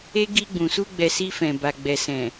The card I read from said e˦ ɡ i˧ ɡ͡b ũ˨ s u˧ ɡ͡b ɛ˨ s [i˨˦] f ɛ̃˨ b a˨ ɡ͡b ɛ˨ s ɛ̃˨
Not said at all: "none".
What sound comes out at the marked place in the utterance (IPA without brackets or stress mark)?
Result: i˧